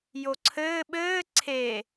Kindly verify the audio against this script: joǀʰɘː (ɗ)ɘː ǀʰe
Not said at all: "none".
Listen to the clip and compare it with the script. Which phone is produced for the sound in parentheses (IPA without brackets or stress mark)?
ɓ